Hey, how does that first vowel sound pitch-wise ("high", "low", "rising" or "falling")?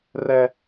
high